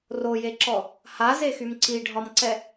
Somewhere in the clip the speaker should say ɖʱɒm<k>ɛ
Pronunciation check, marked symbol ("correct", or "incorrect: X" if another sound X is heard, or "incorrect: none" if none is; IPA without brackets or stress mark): incorrect: ǀ